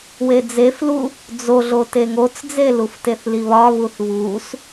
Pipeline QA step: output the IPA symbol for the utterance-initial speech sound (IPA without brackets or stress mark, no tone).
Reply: w